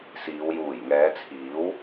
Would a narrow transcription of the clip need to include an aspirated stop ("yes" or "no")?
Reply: yes